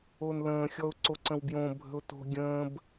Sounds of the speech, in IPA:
onlə̃ːxʲɔʊ̯ ǀoǀə̃wbjõ bʱə̤ʊ̯to̤ ɡʲə̃ːb

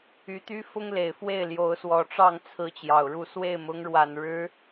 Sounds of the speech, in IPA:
y˧˥t̪y˥ fʊ˥ŋle˨˩ɪ̯fwe˥˩ɪ̯ljo˧˥ʊ̯ swɔ˨˩ʈ͡ʂɑ˥˩ŋt͡sʰɹ̩˧˥ t͡ɕjɑ˨˩ʊ̯ɻu˥˧ swe˥˩ɪ̯mʊ˧˥ŋɻwa˨˩n ɻɻ̩˧˥

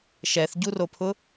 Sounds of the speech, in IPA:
ʃɛθɟuropʰʊ

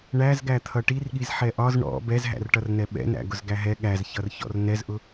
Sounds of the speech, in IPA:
ɳæzɡæ t̪ʰʌʈirɠiz ħɛʔɒz ɳɔ̰ bɛzɦæ̰rʈʌrnɛ ɓɛ̰næ̰ ɡʊzɡæɦɛ ɠæzçʌrçɔ̰r nɛzʔʊ

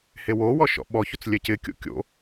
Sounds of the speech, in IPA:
hewowɔ ʃɔ̰ɓɔçot͡s lʲɛcɪkʲo̰ kʲo̰

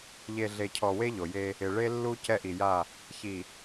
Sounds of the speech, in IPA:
ʎe˨ɮe˨ cʰɔ˨ we˦ʎo˨je˦ | ɪ˨ ɭe˦lːu˦ cɛ˦ʔi˨ja˦˨ | çi˨

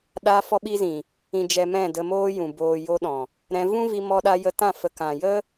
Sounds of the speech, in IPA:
ɗa˧fɔ˧ɓi˧zĩ˨ | ĩ˨d͡ʒɛ˨ mɛ̃˦˨də˧moː˦jũ˨ boː˨ jo˧ɗɔ̃˨ | ɾɛ̃˧vũ˦vi˧ mɔ˧ɗa˧jə˧tã˦˨ fə˨kã˨ jə˦

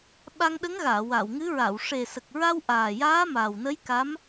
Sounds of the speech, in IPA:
ɓa˧ŋɗə˧˥ŋɣaː˨˩˨ wa˨˩˨wŋɨ˧˥ɹa˨˩˨w ʂe˨˩sə˨˩k̚ɹa˧w ʔaː˨˩jaː˧˥ma˨˩wnə˧˥j ka˧˥m

